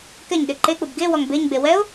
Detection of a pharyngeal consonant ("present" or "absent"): absent